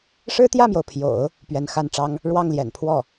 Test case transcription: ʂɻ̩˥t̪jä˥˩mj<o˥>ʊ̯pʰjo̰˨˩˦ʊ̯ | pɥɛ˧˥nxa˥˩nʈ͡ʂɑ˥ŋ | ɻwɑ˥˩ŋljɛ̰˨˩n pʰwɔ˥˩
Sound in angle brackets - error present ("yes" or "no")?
yes